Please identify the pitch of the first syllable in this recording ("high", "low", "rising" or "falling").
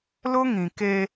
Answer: high